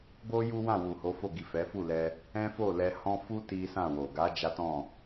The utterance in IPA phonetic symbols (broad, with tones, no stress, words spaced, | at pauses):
bo˦ ju˦wã˦˨ wu˨ho˨˦fo˦˨ ɡi˨ fɛ˨˦fu˦˨lɛ˧ | ɛ̃˦fo˦˨lɛ˧hɔ̃˦ fu˦ ti˦sã˦˨wo˨ ɡa˨˦ d͡ʒa˦tɔ̃˦˨